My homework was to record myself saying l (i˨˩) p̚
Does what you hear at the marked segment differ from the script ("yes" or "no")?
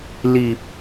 no